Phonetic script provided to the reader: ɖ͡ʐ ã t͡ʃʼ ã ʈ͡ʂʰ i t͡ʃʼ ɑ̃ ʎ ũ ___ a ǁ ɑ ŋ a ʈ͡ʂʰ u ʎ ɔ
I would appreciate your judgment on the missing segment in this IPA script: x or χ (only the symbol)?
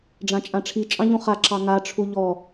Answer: χ